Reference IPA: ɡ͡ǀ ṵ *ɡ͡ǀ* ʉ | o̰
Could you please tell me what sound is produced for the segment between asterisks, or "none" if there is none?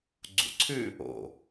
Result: ǀʰ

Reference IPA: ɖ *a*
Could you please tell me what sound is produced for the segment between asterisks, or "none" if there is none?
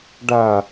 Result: a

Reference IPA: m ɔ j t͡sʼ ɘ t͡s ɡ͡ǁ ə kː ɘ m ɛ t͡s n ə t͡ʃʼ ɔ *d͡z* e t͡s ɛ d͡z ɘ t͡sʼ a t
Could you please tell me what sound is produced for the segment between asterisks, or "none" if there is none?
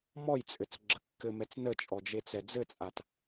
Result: d͡ʒ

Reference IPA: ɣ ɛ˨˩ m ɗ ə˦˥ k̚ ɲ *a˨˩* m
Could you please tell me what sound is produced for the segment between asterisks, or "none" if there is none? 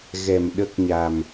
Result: a˨˩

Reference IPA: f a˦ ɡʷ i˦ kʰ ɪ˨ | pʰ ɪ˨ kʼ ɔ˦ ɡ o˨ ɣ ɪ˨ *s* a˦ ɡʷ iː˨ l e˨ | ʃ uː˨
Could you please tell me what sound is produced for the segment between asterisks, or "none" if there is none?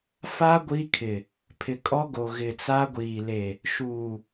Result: t͡s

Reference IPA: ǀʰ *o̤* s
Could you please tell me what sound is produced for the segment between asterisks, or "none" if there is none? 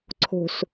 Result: o̤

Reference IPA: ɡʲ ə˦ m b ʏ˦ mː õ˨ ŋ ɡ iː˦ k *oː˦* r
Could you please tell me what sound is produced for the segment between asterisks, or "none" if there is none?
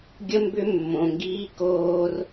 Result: oː˦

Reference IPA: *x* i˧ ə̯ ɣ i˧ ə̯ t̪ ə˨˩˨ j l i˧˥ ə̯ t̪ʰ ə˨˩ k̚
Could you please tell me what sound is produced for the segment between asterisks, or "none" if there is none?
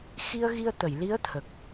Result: x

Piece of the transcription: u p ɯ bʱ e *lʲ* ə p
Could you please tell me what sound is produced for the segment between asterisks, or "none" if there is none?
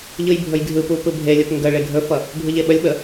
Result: lʲ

